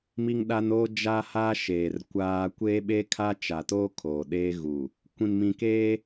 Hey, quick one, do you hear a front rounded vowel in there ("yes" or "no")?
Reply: no